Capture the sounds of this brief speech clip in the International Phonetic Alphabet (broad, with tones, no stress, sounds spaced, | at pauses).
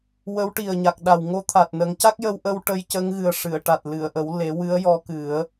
w ə˧˥ w ʈ i˨˩ ə̯ ɲ a˨˩ k̚ ɗ a˨˩ w ŋ o˧˥ t̪ʰ a˨˩ t̚ n ə˨˩˦ ŋ c a˦˥ k̚ j ə˧ w ʔ ə˧ w ʈ ə˧ j c ə˧˥ ŋ ɣ ɨ˨˩ ə̯ ʂ ɨ˨˩˨ ə̯ ʈ a˨˩ t̚ l ɨ˨˩˨ ə̯ ʔ ə˨˩˦ w l e˨˩˦ w ɨ˧˥ ə̯ j ɔ˧˥ k ɨ˨˩˦ ə̯